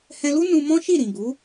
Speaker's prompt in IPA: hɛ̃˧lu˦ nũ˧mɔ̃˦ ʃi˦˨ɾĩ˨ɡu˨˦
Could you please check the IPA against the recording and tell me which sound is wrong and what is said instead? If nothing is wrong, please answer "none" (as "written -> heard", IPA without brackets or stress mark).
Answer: none